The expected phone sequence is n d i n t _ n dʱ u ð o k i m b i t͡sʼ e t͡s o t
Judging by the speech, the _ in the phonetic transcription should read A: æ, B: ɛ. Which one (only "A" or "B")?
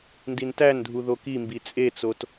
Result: A